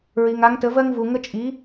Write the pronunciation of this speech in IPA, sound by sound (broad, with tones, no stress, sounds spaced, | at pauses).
ɹ i˩ ŋ a˩˧ ŋ t ə˩˧ v ɜ˦ ŋ v u˩ ŋ ə˦ t͡ʃʼ i˩˥